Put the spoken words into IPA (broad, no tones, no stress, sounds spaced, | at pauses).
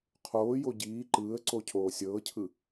qʰ oː j o ɟ iː ǃ ɯː ə̯ ǀ o cʰ oː sʲ ɤː cʰ ɯ